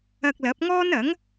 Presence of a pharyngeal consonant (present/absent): absent